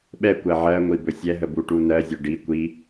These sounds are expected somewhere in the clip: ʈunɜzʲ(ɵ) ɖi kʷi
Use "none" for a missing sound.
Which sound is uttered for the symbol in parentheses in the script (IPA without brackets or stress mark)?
ɵ